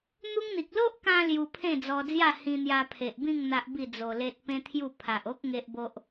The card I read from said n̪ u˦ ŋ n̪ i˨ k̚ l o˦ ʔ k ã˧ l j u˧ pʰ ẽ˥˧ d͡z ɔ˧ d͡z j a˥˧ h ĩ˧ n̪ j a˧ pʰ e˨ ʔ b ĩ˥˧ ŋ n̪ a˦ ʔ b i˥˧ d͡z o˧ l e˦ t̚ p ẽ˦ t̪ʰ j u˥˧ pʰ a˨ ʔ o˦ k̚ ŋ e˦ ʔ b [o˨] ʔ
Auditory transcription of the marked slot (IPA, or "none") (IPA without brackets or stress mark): o˦